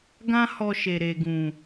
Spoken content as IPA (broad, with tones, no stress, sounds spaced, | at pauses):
ɡ ã˦ h ɔ˧ ʃ e˨ ɾ e˨ ɡ ũ˨